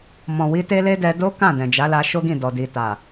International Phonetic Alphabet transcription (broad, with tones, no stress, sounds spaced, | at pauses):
m ɔ̃˨ w i˧ t e˦ l e˦ d ɛ˧ d o˦ k ã˦˨ d ɛ̃˨ d͡ʒ a˨˦ l a˧ ʃ o˦ ɡ ĩ˦˨ d ɔ˨ d i˨ t a˨